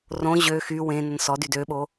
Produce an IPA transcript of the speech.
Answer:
rõ ʑø xy wẽnən sɔdyd øɓo

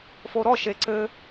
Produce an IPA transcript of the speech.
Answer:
foɾɔ ʃeǀɘ

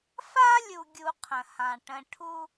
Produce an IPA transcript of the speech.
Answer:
fa˦lʲu˨ɡʲu˨ qʰə̃˨hã˨ ʈə̃˨ʈʰu˦

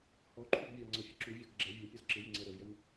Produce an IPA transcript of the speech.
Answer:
hɔǃʰuɡ vʲɔŋ͡ǀʌfʲə ǁuvʲɔɡ ɡ͡ǁɛ vʲɛpʲɔz ǁɪjɪŋ͡ǀɛ ɾəvjən

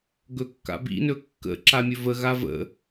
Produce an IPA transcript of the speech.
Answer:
ɡɵkːa̰bḭnɵ kːə̰ǁa mʲɵvəɣa və̰

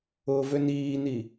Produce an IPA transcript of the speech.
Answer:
ʊːvøniːni

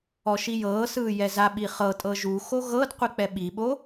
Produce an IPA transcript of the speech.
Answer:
ɔʃijɤːsɯː jɛzaɓi χɤtʼɤ ʒuxo ɣɤd qʷik͡pɛɓiɓo

